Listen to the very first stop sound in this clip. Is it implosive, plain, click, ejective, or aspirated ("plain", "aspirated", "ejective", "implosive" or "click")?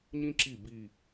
click